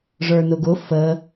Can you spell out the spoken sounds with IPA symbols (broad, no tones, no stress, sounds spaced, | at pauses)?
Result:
ʐ ə˞ n ʊ ɡ ʊ f ə